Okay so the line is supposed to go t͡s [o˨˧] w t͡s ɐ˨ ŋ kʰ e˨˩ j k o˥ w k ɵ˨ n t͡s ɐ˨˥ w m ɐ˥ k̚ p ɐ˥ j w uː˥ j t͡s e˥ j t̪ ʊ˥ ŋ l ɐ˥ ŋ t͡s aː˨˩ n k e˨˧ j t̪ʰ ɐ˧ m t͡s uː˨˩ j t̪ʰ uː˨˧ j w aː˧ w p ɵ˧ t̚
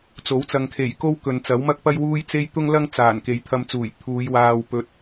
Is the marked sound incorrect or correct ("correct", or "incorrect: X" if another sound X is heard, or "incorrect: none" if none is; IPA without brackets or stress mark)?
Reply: incorrect: o˨˥